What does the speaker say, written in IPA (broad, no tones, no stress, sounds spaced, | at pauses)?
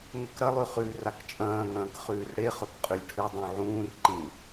ŋ ɵ k ɾ ɐ lˠ ʉ χ ʉː r a k t͡ʃʼ ɐ̃ː ŋ ɐ̃ː k χ ʉː r ɽ e χ ɵ k qʼ ʉ lʲ ʈʰ ɨ dˤ ũ ʕ ũː r ǃ ĩ